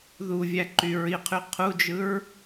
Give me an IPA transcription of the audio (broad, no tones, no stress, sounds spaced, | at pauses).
ð u vʲ æ ǃ y ɹ i qʰ y qʰ u d͡ʒ ɯ ɹ